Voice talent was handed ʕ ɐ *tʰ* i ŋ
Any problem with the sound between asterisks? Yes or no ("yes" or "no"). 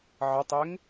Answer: yes